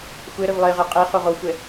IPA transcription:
xʷɛɾəv lˠeʁɛ qʼe χoʁoxʷɛ

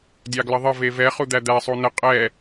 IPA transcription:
dʲɑɡləðˤə vevɛ χud̪æd̪æ sˤunə qʼɛ

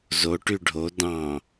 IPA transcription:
zo ʈyɖʱo dɑ̃

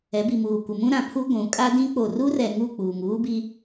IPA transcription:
ɛ˨˦bi˨muː˨ kʷɪ˨mũ˦ ɾã˨pʰu˦ ɡʷũ˨˦ kʼa˦dĩ˦ k͡po˨ru˦rɛ˨ ŋu˦˨ k͡puː˨ŋ uː˦bi˦

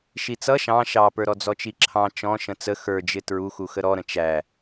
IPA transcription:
ʃit͡sʌ ʃɑ̃ ʃɑpə˞ ɾɔd͡zɔt͡ʃiǁʰɑ̃ t͡ʃɔ̃ ʃə̃t͡sə xə˞d͡ʒɪ tɹuxu xəɾɔɾə̃ t͡ʃæ

